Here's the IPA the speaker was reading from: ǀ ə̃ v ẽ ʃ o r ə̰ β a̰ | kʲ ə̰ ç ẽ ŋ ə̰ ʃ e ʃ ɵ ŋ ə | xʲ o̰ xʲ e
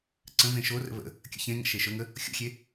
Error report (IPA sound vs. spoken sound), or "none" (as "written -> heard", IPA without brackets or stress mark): a̰ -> ə̰